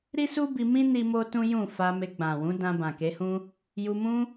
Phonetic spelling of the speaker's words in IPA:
ɾi˦su˦ bi˧mĩ˦ ni˦mo˦tũ˦ jũ˦˨fa˧me˧ ɡ͡bã˨wũ˨˦dã˧ bã˨ke˨˦hũ˦ | ju˧mũ˦

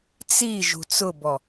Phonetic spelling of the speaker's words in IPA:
t͡si ʒṳt͡sʊbɔ

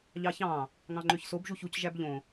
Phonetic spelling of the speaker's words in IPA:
ʎɑçɑ̃ | ŋɑ̃ŋ͡ǃøçsob ʒuçuc ʒæbʎõ

